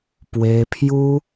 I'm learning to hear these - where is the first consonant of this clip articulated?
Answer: lips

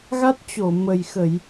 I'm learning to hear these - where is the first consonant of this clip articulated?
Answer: velum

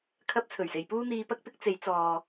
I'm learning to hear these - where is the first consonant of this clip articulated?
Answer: velum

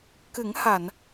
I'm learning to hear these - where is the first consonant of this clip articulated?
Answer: velum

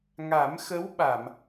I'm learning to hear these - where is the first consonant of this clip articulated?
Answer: velum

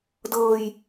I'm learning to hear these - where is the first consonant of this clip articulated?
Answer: tongue tip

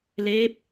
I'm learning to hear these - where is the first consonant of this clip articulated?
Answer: tongue tip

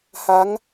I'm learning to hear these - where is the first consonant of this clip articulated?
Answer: throat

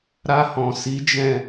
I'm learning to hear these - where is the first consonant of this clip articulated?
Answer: tongue tip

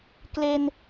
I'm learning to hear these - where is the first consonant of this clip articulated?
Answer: velum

